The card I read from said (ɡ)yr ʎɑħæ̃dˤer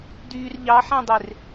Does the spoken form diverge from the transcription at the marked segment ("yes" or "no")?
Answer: yes